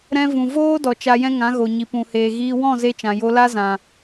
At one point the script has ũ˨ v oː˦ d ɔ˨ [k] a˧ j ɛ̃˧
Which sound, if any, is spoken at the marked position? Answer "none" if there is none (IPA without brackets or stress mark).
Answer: t͡ʃ